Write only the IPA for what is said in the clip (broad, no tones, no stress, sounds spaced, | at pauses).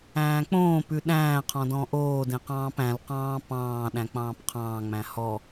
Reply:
æ̃ː k͡p õː p ʉ ɗ æ̃ː qʰ ɔ̃ d ɔ̃ ʔ oː d ẽ q ɑ̃ː p æ̃ l q ɑ̃ː p ɑ̃ː ɗ æ̃ k͡p ɑ̃ː p qʰ ɑ̃ː ŋ͡m æ̃ h ɔ